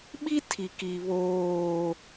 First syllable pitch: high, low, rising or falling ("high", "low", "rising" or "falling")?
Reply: high